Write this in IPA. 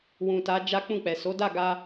w ũ˨ t a˨˦ d͡ʒ a˦ k͡p ũ˦˨ k͡p ɛ˨ s o˨˦ d a˦˨ ɡ a˧

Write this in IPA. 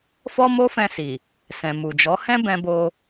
f ɔ˦ m o˦ f ɛ̃˧ s i˨ | s ɛ̃˨ m u˨ d͡ʒ ɔ˨˦ h ɛ̃˦ b ɛ̃˧ b o˧

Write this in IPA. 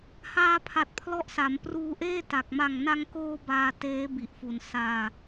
h aː˧ pʰ a˨˩ t̚ pʰ l ɔ˦˥ ʔ s a˩˦ m p r uː˧ ʔ eː˥˩ t a˨˩ k̚ m a˨˩ ŋ n a˧ ŋ k oː˧ b aː˧ t eː˦˥ b i˨˩ ʔ f u˨˩ n s aː˧

